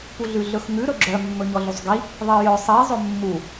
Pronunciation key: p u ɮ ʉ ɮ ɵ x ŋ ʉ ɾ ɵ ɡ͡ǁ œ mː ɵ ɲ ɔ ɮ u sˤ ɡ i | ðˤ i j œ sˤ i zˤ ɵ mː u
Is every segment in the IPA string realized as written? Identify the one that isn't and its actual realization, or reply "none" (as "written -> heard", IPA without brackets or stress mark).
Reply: none